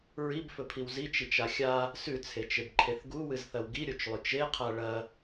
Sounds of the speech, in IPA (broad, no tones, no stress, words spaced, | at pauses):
ɹibfɵpʰiw zit͡ʃit͡ʃa xʲa | sʉt͡sʰet͡ʃebǃʰeθ ɡuwɨzθɐw ɡiɾʲot͡ʃlˠʉt͡ʃ eqʰa ɭɐ